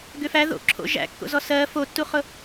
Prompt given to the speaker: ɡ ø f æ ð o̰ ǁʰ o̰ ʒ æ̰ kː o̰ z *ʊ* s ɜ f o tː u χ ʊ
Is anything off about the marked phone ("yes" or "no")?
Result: yes